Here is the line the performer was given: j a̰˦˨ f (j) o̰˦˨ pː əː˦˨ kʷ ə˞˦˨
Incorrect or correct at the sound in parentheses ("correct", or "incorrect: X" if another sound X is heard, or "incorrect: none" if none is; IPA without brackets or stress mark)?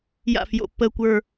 correct